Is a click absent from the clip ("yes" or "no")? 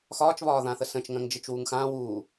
yes